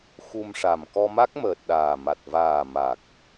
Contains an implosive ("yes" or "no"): yes